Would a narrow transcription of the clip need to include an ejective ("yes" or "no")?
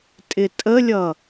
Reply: yes